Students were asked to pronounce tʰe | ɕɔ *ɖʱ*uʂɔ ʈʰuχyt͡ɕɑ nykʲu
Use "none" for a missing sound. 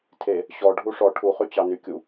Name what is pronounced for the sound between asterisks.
ɖʱ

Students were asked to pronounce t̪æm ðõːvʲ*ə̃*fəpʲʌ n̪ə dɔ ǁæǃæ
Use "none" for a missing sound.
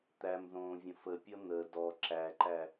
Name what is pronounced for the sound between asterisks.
ə̃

